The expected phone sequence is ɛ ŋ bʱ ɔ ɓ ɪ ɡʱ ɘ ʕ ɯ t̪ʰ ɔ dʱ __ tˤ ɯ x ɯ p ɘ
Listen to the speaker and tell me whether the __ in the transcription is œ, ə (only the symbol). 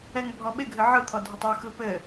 ə